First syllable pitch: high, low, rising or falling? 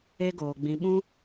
high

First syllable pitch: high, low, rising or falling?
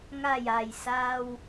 low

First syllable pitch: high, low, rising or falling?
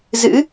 rising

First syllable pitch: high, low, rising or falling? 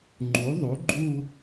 rising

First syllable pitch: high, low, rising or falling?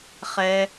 high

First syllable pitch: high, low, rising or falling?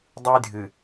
high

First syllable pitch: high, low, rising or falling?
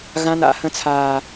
high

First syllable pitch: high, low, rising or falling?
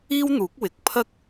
high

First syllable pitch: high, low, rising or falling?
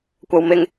low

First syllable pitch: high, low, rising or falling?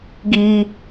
high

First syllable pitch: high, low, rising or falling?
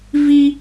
high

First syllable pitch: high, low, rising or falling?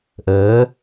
rising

